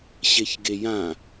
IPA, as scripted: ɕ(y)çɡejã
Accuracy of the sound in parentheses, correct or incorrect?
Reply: incorrect